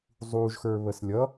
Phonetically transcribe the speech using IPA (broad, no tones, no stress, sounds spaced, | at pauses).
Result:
zˤ u ʒ x ə˞ β ə s lʲ ʌ